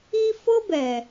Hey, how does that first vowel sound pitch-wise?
high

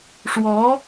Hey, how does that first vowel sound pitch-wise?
rising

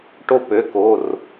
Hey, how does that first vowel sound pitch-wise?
high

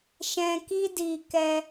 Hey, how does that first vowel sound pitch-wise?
low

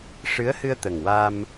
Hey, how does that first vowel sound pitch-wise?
rising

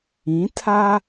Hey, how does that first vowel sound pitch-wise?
rising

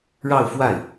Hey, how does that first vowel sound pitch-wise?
falling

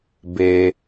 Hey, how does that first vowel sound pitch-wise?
low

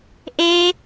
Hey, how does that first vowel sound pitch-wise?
high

